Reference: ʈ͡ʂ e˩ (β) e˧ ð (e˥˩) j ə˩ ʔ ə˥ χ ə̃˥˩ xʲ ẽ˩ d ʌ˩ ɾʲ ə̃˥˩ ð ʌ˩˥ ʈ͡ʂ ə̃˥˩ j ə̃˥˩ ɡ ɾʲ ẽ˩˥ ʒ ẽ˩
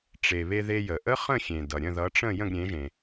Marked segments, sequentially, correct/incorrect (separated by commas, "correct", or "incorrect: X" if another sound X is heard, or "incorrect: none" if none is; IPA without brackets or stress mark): correct, incorrect: e˧